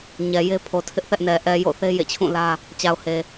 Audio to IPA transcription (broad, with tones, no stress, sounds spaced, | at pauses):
ɲ ɛ˨ j e˦ pʰ o˨ tʰ ɪ˦ ʔ θ ɛ˦ ʔ n ɛ˨ ʔ ɛ˨ j o̰˦˨ θ e˦ j ḛ˦˨ t͡ɕʰ ũ˦˨ l ä˦ | t͡ɕ a˨ ʊ̯ h e˨